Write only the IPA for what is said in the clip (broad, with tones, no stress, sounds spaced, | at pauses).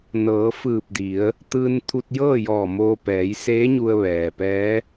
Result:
n ɤː˩˧ f ɯː˧˩ p̚ d i˩˧ ə̯ | t̪ ɯː˧ n t̪ʰ u˧ t̚ j ɤː˥˨ j ɔː˧˩ m oː˧ p ɛː˩˧ j s eː˧˥ ɲ u˧ ə̯ ʋ ɛː˩ p ɛː˧˥